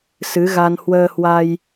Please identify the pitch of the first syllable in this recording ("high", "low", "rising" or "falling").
rising